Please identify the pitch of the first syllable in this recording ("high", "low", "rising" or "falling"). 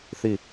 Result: falling